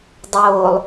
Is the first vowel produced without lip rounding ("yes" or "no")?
no